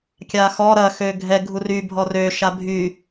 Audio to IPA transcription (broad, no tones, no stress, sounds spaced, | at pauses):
kʲ a x ɔ ɾ ɐ x ø ɡʱ ɛ ɡʱ u r y bʱ ɔ r ø ʃ a bʱ y